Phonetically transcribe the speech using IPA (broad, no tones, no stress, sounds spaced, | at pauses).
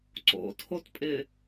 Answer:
ǀ o̰ tʰ o t pʼ ɪ